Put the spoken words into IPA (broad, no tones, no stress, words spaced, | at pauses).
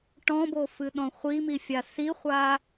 ʈɔ̃bofɨɗɔ̃ χʷimifʲa siχʷa